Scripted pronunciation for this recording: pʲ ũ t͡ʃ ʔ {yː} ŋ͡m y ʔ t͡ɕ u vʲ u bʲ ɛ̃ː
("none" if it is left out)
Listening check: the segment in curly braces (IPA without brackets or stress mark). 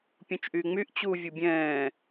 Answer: yː